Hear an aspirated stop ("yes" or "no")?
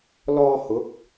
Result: no